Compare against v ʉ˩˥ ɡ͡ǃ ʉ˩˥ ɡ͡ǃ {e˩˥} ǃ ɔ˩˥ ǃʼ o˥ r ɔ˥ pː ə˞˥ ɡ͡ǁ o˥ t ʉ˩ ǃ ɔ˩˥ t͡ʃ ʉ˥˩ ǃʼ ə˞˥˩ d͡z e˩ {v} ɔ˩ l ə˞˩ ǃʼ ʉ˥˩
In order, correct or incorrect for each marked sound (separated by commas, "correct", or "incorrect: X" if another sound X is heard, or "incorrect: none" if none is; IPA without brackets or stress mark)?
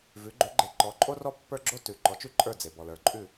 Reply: correct, incorrect: b